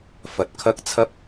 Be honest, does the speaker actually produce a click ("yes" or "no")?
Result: no